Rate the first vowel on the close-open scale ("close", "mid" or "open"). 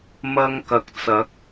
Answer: open